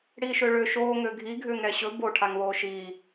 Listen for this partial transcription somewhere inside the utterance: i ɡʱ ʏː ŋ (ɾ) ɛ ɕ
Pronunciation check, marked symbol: correct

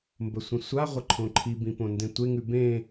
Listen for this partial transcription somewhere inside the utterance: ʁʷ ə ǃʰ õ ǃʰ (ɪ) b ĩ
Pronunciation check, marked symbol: incorrect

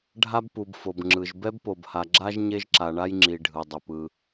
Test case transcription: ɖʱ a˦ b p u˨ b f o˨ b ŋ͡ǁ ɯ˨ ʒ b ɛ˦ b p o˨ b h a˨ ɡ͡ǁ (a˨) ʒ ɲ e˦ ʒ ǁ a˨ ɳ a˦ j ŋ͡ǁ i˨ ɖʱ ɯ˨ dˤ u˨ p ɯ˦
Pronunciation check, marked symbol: incorrect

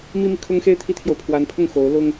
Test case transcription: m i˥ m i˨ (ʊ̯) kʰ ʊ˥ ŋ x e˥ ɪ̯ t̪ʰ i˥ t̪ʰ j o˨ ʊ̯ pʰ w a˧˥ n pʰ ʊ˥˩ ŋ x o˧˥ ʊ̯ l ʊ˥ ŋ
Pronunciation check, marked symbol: incorrect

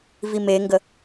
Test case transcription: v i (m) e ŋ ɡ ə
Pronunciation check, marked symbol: correct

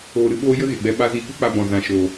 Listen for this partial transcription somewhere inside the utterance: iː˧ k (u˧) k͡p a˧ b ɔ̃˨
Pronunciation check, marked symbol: incorrect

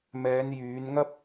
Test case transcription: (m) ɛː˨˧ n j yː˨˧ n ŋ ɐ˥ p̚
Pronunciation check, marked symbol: correct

